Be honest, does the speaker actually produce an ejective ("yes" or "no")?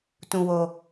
no